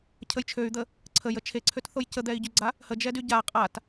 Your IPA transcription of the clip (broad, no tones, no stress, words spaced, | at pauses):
cʰəjt͡ʃʰøy̯d̪ə | ǀʰəj ət͡ʃʰeǀʰøtθoj cəd̪ɛi̯ɟyɡ͡ǀa | həd͡ʒɛ dyɟa qʼat